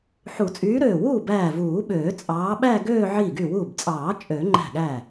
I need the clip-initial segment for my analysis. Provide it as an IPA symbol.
ħ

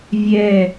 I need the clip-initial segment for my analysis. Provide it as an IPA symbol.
vʲ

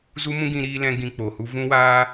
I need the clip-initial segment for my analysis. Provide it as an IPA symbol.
z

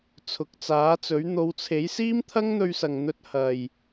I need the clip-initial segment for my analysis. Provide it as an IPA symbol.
t͡sʰ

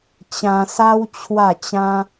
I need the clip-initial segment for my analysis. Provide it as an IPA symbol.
t͡ɕ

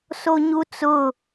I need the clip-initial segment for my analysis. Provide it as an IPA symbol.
s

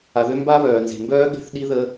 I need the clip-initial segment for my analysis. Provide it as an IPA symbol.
a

